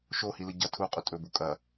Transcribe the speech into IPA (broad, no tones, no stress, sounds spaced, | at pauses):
ʃ o h i l ɨ ɟ ɐ tʰ u qʼ u tʼ ɵ b u kʼ ɐ